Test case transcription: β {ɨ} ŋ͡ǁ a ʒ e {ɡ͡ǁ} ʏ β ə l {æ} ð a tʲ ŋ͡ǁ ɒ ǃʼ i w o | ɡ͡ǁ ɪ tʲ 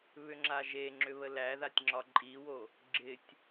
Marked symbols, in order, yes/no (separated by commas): no, no, yes